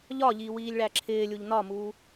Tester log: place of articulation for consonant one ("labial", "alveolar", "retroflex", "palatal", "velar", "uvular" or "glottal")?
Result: palatal